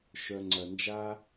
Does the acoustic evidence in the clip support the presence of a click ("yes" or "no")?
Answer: yes